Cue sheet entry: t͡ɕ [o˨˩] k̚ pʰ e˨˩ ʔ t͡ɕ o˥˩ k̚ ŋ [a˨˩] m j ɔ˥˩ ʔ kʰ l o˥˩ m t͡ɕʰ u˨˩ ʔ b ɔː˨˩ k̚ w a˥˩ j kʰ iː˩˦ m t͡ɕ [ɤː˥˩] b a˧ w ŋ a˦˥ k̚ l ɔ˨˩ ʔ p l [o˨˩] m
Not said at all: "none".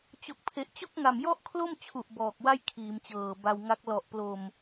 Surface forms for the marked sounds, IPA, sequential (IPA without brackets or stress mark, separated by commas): o˨˩, a˨˩, ɤː˨˩, o˨˩